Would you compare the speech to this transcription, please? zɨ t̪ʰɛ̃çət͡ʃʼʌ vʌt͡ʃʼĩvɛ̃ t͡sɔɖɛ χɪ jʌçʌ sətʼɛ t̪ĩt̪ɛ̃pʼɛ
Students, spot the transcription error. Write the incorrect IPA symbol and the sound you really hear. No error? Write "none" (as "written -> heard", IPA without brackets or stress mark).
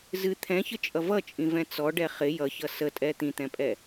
none